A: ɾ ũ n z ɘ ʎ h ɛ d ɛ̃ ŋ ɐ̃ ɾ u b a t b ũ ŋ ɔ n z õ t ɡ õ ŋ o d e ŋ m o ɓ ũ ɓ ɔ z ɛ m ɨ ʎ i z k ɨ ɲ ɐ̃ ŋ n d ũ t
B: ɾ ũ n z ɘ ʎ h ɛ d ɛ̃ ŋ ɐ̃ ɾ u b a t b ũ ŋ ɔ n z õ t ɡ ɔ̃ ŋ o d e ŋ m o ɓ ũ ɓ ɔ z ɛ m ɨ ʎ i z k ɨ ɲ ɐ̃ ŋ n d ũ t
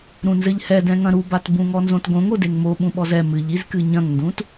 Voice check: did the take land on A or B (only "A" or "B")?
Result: A